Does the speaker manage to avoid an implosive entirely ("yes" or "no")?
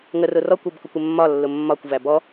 yes